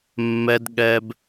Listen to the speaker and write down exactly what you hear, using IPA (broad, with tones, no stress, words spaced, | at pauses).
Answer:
mːɛ˧dɠɛ˧b